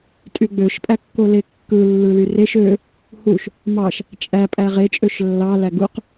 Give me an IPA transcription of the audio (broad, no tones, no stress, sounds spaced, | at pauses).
tʼ y ɡ͡b ø ʃ pʼ æ kː o l e kː ɯ lː ɯ l y r e ʃ ø | h u ʃ | m ɑ ʃ | t͡ʃʼ æ pʼ æ ʁ e t͡ʃʼ ø ʃ lː ɑ l æ ɡ u q